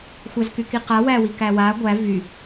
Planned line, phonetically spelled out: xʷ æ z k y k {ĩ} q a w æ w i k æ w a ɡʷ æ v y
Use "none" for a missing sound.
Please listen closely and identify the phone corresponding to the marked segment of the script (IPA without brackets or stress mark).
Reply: i